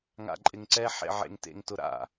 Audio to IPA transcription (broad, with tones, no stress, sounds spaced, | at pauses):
ŋ a̰˨ ǃʼ ɪ˨ ŋ ǀ ɛ˦ ħ ḛ˨ ʕ ḛ˨ ŋ t ḛ˨ ŋ t ʊ˨ ɾ a̰˨